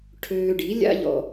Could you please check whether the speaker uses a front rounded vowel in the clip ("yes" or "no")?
yes